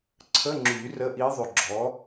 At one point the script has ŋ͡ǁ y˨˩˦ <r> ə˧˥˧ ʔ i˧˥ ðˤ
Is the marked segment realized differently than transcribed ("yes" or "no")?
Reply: no